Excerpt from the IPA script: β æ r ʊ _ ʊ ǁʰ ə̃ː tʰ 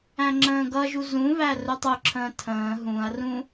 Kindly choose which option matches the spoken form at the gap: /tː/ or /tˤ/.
tˤ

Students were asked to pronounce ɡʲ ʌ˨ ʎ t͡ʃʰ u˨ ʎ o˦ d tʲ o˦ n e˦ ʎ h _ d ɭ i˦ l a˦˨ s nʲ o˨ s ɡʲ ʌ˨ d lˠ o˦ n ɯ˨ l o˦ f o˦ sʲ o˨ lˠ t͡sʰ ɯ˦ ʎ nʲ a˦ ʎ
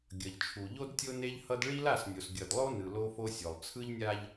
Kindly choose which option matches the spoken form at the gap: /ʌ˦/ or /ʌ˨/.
ʌ˦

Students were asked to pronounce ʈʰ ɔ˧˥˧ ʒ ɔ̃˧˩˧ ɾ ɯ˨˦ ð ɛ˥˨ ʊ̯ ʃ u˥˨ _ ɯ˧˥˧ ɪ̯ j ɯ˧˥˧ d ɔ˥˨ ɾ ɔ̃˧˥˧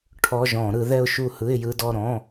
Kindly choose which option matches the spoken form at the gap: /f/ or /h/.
h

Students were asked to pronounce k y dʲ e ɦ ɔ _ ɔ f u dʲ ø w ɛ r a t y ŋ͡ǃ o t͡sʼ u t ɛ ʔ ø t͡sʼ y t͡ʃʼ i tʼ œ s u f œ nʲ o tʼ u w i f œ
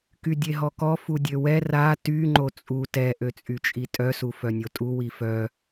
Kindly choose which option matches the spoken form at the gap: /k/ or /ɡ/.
k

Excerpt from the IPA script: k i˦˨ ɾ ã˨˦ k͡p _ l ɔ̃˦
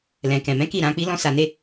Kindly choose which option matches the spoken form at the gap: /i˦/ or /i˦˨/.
i˦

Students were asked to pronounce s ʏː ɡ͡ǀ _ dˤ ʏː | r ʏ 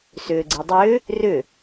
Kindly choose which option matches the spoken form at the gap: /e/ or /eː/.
e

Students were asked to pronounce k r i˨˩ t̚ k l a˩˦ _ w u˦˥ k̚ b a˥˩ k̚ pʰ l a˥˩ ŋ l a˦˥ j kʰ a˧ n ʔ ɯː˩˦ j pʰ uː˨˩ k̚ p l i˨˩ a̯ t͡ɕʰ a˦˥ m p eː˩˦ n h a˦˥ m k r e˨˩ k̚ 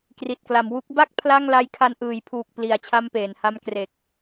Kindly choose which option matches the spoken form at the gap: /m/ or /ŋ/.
m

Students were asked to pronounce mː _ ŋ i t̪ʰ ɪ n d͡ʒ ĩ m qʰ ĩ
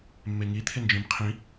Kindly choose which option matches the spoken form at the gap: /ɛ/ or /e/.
e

